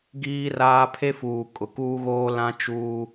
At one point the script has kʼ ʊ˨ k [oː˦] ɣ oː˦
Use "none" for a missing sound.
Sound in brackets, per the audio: uː˦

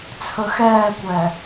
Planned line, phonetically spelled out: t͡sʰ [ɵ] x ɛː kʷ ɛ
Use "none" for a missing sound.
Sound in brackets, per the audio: ɵ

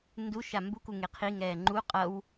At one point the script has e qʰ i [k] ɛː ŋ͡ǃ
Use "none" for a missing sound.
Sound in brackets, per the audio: ŋ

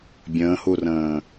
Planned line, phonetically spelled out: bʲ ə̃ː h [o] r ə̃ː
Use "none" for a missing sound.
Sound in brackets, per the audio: u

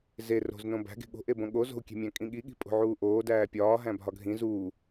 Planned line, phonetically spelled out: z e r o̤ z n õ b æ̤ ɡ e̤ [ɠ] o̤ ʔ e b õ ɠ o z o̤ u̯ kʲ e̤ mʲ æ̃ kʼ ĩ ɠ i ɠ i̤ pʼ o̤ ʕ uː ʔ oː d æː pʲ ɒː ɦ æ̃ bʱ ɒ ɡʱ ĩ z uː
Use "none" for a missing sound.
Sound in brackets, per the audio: ɠ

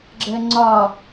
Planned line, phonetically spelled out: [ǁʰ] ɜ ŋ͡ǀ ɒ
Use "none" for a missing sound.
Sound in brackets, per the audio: ɡ͡ǁ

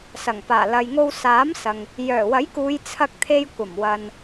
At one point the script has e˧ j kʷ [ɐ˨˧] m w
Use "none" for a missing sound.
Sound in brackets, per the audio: ɐ˨˩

